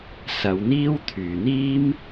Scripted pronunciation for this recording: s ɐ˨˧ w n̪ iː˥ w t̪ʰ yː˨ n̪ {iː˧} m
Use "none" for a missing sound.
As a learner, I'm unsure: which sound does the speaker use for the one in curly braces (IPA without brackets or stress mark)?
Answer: iː˥